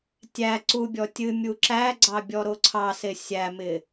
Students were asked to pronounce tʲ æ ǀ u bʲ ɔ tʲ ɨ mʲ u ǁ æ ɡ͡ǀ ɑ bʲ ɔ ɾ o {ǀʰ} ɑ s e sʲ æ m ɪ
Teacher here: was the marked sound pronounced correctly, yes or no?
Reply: yes